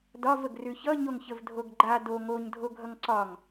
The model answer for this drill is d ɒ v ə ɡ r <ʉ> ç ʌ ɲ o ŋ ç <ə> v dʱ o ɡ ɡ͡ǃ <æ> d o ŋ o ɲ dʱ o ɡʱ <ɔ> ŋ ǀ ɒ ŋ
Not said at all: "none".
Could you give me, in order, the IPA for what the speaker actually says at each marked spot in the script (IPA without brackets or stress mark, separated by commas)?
ʉ, ə, a, ʌ